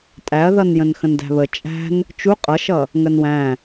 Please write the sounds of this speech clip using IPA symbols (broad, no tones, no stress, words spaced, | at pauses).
tʼæɐ̯ðʌn jə̃nxə̃ndæ̤βə t͡ʃʼæ̤n | t͡ʃu qʼʌʃʌ | ŋənwæ̃